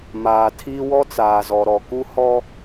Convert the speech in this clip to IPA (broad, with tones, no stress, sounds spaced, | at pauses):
m aː˨ tʰ iː˦ w ɔ˦ t͡s aː˨ z ɔ˨ ɾ ɔ˨ k u˦ h ɔ˦